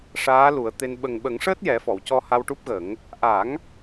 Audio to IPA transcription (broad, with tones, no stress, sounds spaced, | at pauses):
ʂ aː˧˥ l u˨˩˦ ə̯ t̪ e˧ n ɓ ə˨˩ ŋ ɓ ə˨˩˦ ŋ ʂ əː˦˥ t̚ j ɛ˨˩˦ f ɔ˨˩˨ w c ɔ˧ h a˧ w ʈ u˦˥ p̚ ɣ ə˨˩˦ ŋ | ʔ a˨˩˦ ŋ